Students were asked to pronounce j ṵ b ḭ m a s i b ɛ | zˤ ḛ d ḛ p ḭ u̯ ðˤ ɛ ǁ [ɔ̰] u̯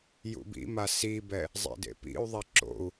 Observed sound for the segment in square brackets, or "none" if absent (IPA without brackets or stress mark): o̰